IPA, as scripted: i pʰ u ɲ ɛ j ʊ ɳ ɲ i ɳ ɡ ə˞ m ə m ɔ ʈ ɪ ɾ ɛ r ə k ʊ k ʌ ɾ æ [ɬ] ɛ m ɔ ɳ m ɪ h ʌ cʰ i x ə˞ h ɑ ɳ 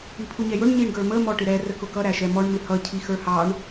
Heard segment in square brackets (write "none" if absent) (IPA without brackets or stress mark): ʃ